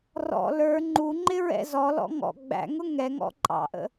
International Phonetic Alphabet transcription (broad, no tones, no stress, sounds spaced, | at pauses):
r ɔ̰ l ə˞ ŋ͡ǃ u ŋ͡ǃ ɪ ɹ ɛ̰ z ɔ l ɔ̰ ŋ ɔ̰ ɡ͡b æ̰ ŋ ʊ ŋ ɛ ŋ ɔ̰ ǃʼ ɑ̰ ʔ ə̰